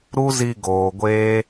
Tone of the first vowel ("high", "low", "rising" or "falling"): high